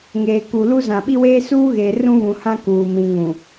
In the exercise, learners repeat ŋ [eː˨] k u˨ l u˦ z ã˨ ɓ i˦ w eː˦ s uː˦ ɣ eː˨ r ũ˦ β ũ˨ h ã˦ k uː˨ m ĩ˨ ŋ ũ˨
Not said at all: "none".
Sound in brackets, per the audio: eː˨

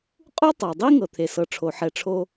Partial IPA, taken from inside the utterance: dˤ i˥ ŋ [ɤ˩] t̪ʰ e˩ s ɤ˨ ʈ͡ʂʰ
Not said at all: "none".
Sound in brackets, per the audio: ɤ˩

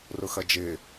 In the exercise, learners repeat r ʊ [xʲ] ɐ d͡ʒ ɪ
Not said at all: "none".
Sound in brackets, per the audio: x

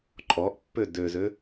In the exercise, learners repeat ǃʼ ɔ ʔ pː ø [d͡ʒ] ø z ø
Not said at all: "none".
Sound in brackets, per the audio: d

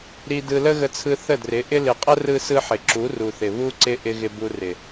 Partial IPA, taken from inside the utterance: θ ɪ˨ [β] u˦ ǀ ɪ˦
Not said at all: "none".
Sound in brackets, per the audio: β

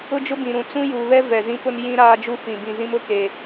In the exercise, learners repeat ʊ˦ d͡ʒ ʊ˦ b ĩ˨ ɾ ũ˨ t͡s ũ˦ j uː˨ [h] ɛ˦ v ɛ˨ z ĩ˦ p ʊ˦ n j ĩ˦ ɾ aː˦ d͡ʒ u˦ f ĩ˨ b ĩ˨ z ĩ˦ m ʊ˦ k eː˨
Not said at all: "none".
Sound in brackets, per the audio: β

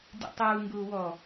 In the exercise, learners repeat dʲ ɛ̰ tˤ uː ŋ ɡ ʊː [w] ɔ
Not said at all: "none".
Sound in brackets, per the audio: w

